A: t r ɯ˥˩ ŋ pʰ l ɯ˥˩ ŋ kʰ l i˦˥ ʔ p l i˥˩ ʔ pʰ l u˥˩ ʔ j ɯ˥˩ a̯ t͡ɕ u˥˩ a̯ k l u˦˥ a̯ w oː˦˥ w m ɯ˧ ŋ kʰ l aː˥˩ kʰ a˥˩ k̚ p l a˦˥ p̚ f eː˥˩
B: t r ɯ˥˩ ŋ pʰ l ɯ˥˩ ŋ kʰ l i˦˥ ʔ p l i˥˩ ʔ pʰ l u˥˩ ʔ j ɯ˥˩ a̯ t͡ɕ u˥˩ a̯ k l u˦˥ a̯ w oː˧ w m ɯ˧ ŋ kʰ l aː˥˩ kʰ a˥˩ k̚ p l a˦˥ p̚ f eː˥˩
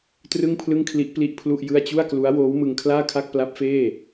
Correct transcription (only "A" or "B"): A